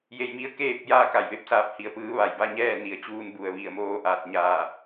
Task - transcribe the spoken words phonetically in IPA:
j e˧ j m i˧˥ ə̯ k eː˥˨ p̚ j aː˥˨ k a˧˩ j ʋ e˥˨ p̚ s aː˧˥ p̚ h i˩˧ ə̯ p ɯː˧˥ ʋ a˧˩ j b a˥˨ ɲ ɛː˥˨ n i˩˧ ə̯ t͡ɕ uː˧ n b u˩ ə̯ ʋ i˧˩ ə̯ m oː˧ ʔ aː˧˩ t̚ ɲ aː˧˩

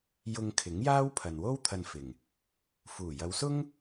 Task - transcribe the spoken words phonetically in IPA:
j ʊ˧ ŋ kʰ ɪ˨˥ ŋ j aː˥ w pʰ ɐ˨ n w o˥ w t̪ʰ ɐ˧ n f ɪ˨˩ ŋ | f uː˨˩ j ɐ˨˧ w s ʊ˥ ŋ

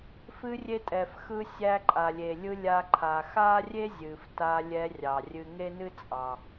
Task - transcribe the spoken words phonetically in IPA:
f ɨ˧ rʲ e˧ tʼ ɛ˩ f x ɯ˧ sʲ æ˧ ǃʼ a˩ lʲ e˩ lʲ ɯ˧ lʲ a˧ ǃʰ a˩ x a˥ rʲ e˥ zʲ ɨ˩ f t a˧ lʲ ɛ˧ rʲ ɑ˩ rʲ ɨ˧ ŋ e˥ n ɨ˥ t͡sʼ ɑ˩

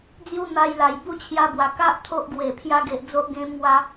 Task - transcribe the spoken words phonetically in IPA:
d͡z j u˦ n̪ a˧ j l a˨˩ j b u˥˧ t͡ɕʰ j a˧ b w a˨˩ k a˦ ʔ t̪ʰ o˦ ʔ ɡ w e˨˩ pʰ j a˧ ɡ e˨ ʔ d͡z o˦ ʔ ɡ ẽ˦ m ŋ w a˦

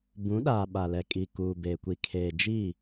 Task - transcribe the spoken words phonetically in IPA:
b ũ˨˦ ɗ aː˨ ɓ a˨ l ɛ˨ kʼ i˨ k uː˨ b eː˨ kʷ i˨ kʰ eː˨ d͡ʒ i˦˨

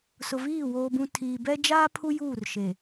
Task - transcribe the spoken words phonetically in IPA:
s ʊ˨ v iː˦˨ w oː˨ b ũ˨ tʰ iː˨ b ɛ˦ d͡ʒ aː˦ pʰ u˦ j uː˦˨ r ʃ e˨

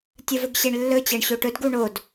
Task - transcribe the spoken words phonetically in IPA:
tʲ ə v ɵ ɡ ɕ e ɳ lː ɵ t͡ɕ ɜ ɳ ɕ o ʈ ɵ d ɡ u ɳ o d

